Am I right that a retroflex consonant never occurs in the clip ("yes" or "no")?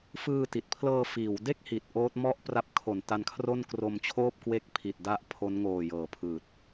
yes